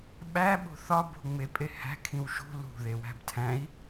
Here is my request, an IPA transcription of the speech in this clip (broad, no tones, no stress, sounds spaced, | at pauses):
ɓ æ ɓ o̤ θ ɒ b o̤ ŋ͡m e pʼ e h æ̤ kʰ ĩ w ʃ ṳ l ṳ ð e w æ̤ b tʰ æ̃ i̯